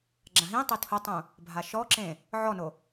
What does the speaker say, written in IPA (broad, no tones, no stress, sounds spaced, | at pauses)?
ɡ͡ǁ ã ɦ ĩ tˤ e tʰ ʊ tˤ ũ | bʱ a ʃ ɔ ǁ ẽ | ʕ ɔ n o